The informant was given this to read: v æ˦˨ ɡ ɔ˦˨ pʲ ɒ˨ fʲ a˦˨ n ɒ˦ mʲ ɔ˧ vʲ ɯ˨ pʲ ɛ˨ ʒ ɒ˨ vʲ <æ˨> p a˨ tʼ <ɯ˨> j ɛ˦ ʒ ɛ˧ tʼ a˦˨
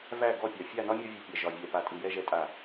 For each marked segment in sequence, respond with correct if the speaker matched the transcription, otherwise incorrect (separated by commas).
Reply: incorrect, correct